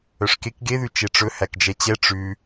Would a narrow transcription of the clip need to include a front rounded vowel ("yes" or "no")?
yes